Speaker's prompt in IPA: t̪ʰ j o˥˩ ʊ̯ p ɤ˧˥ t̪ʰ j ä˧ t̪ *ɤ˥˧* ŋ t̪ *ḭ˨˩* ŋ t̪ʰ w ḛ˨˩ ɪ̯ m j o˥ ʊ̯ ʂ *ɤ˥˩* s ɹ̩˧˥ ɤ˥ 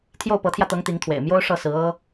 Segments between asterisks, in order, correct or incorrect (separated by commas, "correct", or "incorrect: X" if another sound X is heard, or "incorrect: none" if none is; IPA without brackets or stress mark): incorrect: ɤ˧˥, incorrect: i˧˥, correct